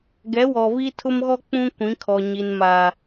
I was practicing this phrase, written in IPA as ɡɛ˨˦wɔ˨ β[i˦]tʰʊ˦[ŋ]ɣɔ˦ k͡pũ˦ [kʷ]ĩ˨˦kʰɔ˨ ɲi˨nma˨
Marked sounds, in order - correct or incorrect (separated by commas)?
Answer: correct, incorrect, correct